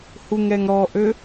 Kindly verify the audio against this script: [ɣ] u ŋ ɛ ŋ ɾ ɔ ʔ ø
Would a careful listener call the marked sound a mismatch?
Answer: yes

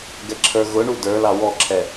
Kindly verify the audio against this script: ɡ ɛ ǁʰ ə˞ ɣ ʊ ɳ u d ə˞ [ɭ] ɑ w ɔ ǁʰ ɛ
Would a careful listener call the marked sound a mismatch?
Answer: yes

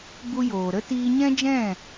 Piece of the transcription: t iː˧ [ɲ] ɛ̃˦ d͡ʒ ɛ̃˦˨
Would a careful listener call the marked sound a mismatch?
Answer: no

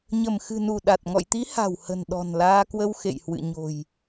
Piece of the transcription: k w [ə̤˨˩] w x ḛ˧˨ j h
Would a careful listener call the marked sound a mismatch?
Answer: yes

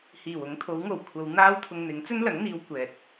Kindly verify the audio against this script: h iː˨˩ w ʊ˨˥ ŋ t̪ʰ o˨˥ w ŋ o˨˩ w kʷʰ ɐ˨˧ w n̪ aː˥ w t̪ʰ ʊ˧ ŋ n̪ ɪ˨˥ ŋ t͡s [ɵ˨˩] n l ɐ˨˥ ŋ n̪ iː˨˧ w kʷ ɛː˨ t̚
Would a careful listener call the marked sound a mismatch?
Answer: yes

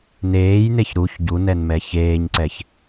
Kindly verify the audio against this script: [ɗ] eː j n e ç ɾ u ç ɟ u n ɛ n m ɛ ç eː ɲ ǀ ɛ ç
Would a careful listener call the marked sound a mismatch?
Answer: yes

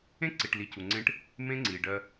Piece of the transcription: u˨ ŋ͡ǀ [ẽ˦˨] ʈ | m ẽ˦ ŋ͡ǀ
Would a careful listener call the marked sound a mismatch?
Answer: yes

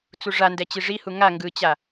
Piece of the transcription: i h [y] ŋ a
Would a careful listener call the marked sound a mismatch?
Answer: yes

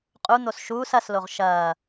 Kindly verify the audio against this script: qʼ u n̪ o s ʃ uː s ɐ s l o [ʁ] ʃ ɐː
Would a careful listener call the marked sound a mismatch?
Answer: no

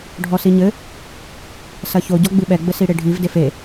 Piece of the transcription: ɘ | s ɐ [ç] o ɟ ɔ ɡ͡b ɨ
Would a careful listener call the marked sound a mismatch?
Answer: no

